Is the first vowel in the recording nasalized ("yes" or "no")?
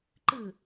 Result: no